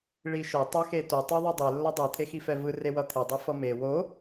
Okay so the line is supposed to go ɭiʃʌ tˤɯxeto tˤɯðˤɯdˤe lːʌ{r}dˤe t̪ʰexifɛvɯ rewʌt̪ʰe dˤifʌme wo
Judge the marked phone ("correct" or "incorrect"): incorrect